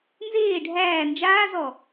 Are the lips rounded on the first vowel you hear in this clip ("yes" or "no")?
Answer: no